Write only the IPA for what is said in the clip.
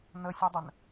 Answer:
n ə sʲ u dˤ ə n

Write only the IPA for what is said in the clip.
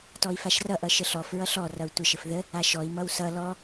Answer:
t ɔ i̯ f a ʃ r ʌ ʔ ʌ ʃ ə ɬ ɔ f ɹ ʌ ɬ ɔ r ʌ u̯ tʷ ə ʃ ə f ð ə | a ʃ ɔ i̯ m ʌ w s ʌ l ɔ

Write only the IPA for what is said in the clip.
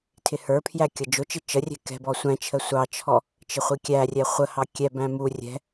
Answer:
tʰ ɪ h ə˞ pʰ j æ kʲ ʌ d͡ʒ ʊ t͡ʃ ɪ t͡ʃ ə rʲ ɛ̤ k ɛ̤ b ɔ sʷ æ̃ t͡ʃʰ ə sʷ ɑ t͡ʃʰ ɔ | t͡ʃ ɪ χʷ i kʲ æ rʲ ɛ χʷ ə h ɑ kʲ ɛ b æ̃ m u rʲ ɛ̤

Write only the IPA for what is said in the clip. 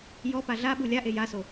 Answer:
j ɔ p a ɮ a ɓ u lʲ a ʔ e j a s o

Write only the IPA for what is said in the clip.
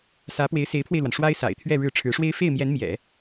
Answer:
s ä˧˥ p w e˧˥ ɪ̯ s e˧˥ ɪ̯ pʰ w e˧ ɪ̯ l w a˩ n ʂ w a˥ ɪ̯ s a̰˨˩ ɪ̯ t̪ʰ ɥ ɛ˥˧ ɻ ɻ̩˥˩ ʈ͡ʂʰ ɻ̩˧˥ ʂ w e˥ ɪ̯ f e˥˩ ɪ̯ m j ɛ˧˥ n m j ɛ̰˨˩˦

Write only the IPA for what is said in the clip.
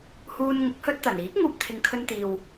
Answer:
h uː˧ n ŋ ʊ˨˥ k̚ h ɵ˧ t̚ t̪ ɐ˨˩ n iː˨˥ k̚ ŋ uː˧ p̚ t̪ʰ ɪ˨ ŋ kʰ ɵ˧ n t̪ iː˨ w

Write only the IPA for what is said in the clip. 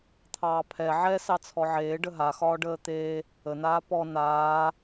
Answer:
t̪ʰ ɑː pʰ ɛ ʕ ɛ s ɑ t͡sʰ ɔ ʕ eː ɖ ə ɦ a x ɒː ɖ əː t̪ e | ə n aː p ɔ n aː

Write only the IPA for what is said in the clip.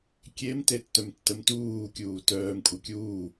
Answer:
kʲ e m t e tː œ m tː ə m t uː kʲ uː t œː m kʷʼ ə kʲ uː

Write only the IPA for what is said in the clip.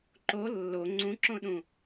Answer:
ǃ o lː o ŋ͡ǀ ũ ǁ õ ɗ ũ

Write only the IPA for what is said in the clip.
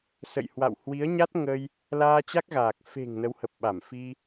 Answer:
s ə̰˧˨ j h w a̰˧˨ w h w i˨˦ ə̯ ɲ a˦˥ t̚ ŋ ə˧ j | l aː˧ t͡ɕ a˦˥ k̚ ɣ aː˨˩ k̚ f e̤˨˩ ŋ n ə˨˦ w h ə˨˩ p̚ ɓ a˧˩ m f i˧

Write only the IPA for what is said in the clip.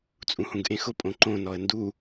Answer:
t͡sʼ ũ h ũ ɡ ʔ ẽ x ʊ pʼ õ ǃ õ n ɔ ə̯ n d u

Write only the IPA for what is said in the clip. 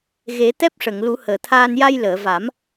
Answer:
ɣ e˨˩˦ t̪ ɛ˦˥ p̚ ʂ ə˨˩˨ ŋ l u˨˩˦ h əː˨˩˨ t̪ʰ aː˧ n j a˧ j l əː˨˩˨ v a˨˩˦ m

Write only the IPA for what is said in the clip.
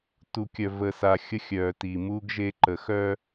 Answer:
t u˨ kʲ œ˨ v ə˨ s a˨ xʲ ə˦ xʲ œ˨ t i˨ m u˦ ɡ ʒ e˦ ǃ ə˨ x œ˦

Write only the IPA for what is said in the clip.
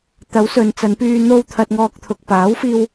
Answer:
t̪ ɐ˨˥ w s ɵ˨ n t͡s ɐ˨˧ n p yː˧ n̪ o˧ w t̪ʰ ɐ˧ t̚ ŋ ɔː˧ k̚ t̪ʰ ʊ˨ k̚ p aː˨˥ w f iː˧ w

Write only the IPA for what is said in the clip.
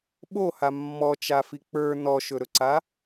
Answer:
ɓ o h a mː ɔ t͡ʃ a f i k͡p ə˞ n ɔ ʃ ɵ ɾ ɵ ǀ a

